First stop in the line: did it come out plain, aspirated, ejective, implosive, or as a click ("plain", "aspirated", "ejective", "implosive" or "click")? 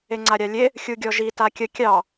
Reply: click